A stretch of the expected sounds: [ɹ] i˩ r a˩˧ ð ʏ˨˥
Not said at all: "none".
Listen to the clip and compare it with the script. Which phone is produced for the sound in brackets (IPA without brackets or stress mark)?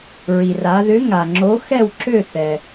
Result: ɹ